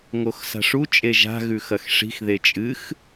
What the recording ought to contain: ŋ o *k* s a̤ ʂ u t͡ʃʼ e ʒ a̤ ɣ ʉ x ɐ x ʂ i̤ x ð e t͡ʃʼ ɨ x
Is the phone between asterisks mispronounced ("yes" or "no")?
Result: yes